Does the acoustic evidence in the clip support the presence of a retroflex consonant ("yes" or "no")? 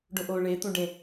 yes